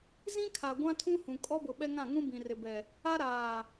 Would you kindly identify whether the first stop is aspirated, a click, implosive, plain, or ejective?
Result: aspirated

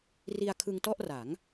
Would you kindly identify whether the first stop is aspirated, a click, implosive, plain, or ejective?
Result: aspirated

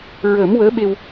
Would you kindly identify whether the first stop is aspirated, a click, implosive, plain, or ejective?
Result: implosive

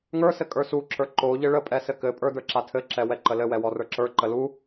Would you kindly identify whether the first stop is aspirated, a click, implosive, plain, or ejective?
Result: ejective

